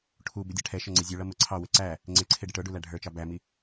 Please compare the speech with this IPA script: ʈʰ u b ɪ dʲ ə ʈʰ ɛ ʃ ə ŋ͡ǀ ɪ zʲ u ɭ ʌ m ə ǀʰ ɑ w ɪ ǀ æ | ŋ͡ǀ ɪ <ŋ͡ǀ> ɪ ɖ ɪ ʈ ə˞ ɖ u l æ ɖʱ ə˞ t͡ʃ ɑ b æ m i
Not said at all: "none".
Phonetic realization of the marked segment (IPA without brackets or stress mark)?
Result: ǀʰ